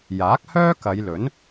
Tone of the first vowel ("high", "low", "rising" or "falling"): rising